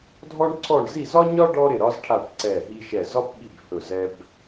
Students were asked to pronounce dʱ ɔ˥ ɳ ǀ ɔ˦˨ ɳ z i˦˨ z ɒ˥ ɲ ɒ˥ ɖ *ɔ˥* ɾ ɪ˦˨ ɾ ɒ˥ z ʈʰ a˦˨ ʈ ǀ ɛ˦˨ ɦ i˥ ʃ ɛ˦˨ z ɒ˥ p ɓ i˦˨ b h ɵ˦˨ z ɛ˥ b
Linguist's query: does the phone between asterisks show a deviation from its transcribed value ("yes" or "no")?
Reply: no